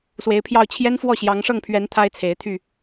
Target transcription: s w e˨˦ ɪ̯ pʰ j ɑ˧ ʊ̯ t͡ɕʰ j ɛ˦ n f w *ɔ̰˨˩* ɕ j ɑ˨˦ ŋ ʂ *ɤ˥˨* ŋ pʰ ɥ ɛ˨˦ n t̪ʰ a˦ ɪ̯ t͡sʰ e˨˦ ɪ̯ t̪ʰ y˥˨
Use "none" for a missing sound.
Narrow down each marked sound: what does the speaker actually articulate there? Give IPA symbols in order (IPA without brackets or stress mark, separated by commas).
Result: ɔ˥˨, ɤ˥˨